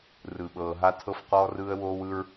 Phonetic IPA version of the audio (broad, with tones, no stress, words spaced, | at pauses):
rɯ˨ɓɤː˨ɦa˦ tʰɤ˦fqɔː˦rɯː˦ə̯ woː˦wɯ˦ɹ